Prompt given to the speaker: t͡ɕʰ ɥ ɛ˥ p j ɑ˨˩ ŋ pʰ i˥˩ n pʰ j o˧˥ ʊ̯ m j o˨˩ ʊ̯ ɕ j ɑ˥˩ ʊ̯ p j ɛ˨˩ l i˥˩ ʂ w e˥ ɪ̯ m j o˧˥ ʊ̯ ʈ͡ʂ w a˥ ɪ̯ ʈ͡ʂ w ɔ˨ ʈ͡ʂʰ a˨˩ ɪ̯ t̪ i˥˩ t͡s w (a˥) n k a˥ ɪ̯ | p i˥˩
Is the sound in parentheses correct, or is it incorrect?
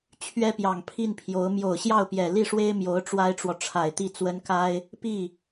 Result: incorrect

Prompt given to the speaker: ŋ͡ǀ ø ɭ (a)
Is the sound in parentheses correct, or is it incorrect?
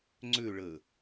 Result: incorrect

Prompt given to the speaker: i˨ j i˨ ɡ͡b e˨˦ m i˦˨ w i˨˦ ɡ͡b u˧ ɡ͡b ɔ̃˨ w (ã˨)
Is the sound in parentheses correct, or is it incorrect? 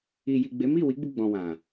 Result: correct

